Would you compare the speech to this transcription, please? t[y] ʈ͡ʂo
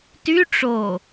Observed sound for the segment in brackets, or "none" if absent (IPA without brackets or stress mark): y